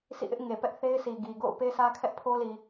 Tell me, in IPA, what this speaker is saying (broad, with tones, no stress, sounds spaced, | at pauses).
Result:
sʰ ḭ˦˨ ʔ ɪ˦ ʔ ŋ e˨ p ɛ˦ ʔ θ e˦ ɪ̯ sʰ i˨ ɡ i˨ ɡ o̰˦˨ ʊ̯ p e˦ sʰ ä˦ kʰ ɛ˦ ʔ pʰ o˦ l i˨